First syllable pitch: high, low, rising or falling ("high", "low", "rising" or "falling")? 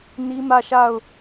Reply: high